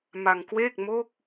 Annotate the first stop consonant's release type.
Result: plain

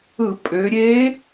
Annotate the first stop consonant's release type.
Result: ejective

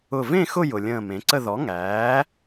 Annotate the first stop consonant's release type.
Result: click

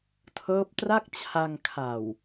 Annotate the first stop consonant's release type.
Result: aspirated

